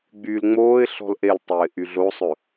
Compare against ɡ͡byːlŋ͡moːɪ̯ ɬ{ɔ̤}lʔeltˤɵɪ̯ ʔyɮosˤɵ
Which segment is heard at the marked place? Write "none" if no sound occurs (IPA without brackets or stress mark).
ɔ̤